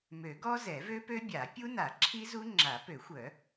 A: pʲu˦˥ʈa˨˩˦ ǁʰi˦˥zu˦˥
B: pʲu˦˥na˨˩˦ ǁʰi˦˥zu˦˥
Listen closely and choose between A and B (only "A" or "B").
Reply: B